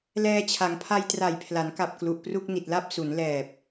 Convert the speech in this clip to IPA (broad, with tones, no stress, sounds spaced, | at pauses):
l ɛː˧ t͡ɕʰ a˩˦ ŋ pʰ a˧ j t r a˨˩ j pʰ l a˩˦ n k a˨˩ p̚ k l u˨˩ ʔ p r u˥˩ k̚ n i˨˩ t̚ l a˥˩ p̚ s u˩˦ n l ɛː˨˩ p̚